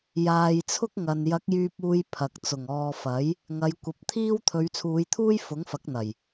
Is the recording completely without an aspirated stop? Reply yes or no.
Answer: no